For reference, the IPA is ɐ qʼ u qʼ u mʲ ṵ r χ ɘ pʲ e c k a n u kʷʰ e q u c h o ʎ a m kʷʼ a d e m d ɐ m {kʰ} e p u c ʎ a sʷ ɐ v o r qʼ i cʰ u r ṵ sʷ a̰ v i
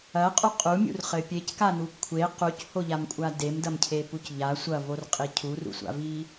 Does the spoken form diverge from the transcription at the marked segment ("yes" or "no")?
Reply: yes